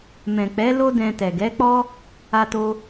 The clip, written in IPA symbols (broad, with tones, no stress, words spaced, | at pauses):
mɛ̃˨k͡pɛ˨˦ lo˦dɛ̃˧ tɛ˨ɡɛ˨˦k͡pɔ˦ | a˧to˧